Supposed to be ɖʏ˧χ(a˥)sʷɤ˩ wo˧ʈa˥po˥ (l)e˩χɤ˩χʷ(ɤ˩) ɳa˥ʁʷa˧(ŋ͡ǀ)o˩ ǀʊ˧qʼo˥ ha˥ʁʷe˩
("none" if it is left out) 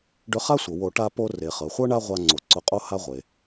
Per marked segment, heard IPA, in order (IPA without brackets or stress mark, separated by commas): a˥, r, ɤ˥, ŋ͡ǀ